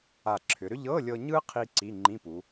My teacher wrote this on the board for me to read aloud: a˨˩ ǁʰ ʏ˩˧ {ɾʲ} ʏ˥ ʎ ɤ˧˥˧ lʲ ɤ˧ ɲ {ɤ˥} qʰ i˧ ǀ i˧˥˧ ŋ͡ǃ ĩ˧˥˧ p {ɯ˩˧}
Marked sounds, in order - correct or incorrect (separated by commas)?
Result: incorrect, incorrect, incorrect